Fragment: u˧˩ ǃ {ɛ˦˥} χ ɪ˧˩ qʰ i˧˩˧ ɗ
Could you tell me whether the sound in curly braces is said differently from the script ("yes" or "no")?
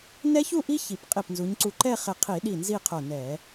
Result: yes